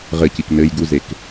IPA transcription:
ʁ ɘ c i k n ɘ j ɡ u z e k

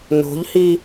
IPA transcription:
n o̤ ʎ h i

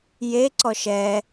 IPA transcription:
j e ǀ ɔ ʃ ɛ

